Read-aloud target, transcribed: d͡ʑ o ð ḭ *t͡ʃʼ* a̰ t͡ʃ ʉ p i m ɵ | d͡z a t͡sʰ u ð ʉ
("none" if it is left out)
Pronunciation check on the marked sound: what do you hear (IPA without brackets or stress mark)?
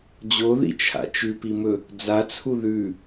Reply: t͡ʃʰ